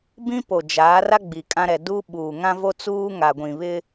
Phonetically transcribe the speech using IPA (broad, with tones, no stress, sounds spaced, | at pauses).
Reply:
b ĩ˦ p o˨ d͡ʒ aː˨˦ r a˦ ɡ͡b i˨ kʼ ã˦ ɾ ɛ˨ d u˦ ɓ uː˨ ŋ ã˦ v o˦ t͡s uː˦ ŋ a˨ ɡʷ ĩ˨ β ɪ˦